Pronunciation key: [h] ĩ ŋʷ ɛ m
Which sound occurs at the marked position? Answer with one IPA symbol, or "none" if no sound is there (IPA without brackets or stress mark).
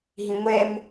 ɦ